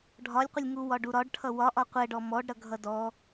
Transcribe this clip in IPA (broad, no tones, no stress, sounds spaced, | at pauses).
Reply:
ɖʱ ɒ lʲ qʷ ə lʲ ŋ u w ɒ ɖ u ɾ ɒ ɖ ʈʰ ʌ w ɒ ʔ ɒ qʷ ɛ ɖ ɔ m ɔ ɖ ɾ ʌ ɡʱ ʌ d ɔ